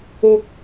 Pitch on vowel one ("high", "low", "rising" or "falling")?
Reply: high